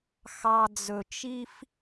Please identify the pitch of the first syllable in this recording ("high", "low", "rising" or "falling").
low